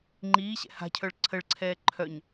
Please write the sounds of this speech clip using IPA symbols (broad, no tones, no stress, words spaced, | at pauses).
ŋ͡ǃiːɕɛ̰ ha̤cʰœɭ ǀʰəɭǀʰɛː ǃʰœɲ